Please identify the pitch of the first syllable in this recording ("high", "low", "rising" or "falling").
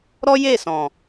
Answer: high